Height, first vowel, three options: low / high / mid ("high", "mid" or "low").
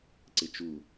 high